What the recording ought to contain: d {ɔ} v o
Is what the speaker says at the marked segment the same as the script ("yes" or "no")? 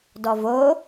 yes